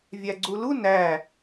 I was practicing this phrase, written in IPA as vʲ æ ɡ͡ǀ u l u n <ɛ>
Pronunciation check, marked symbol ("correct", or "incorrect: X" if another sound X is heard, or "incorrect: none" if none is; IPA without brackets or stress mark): incorrect: æ